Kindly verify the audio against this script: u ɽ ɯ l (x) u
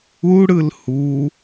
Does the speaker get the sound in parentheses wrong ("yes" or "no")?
yes